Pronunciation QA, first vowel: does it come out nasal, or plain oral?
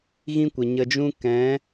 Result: nasal